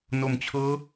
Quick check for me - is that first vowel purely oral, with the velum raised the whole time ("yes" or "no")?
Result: yes